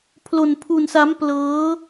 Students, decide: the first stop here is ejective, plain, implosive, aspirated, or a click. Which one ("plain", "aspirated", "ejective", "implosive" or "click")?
aspirated